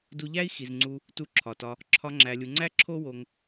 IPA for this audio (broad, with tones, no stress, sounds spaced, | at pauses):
d u˧ ʎ æ˦ i̯ x i˨ z ŋ͡ǀ u˧ | t u˧ ǁʰ ɒ˨ t ɒ˧ | ǁʰ ɒ˧ ŋ͡ǁ æ˨ lʲ u˨ ŋ͡ǀ æ˦ ǁʰ o˦ w o˧ ŋ